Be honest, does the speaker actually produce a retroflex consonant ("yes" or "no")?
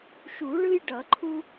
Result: yes